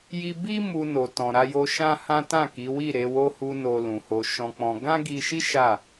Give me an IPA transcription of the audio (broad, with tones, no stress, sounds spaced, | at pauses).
j i˧ b i˦ m u˧ n o˨ t ɔ̃˨ ɾ a˧ j o˧ ʃ ã˦ h ã˦ t ã˦˨ k i˨˦ w i˦˨ ɾ e˨˦ w o˦ h u˧ n o˧ l ũ˨ h o˧ ʃ ɔ̃˧ k͡p ɔ̃˧ ɡ ã˦ ɡ i˧ ʃ i˦ ʃ a˦˨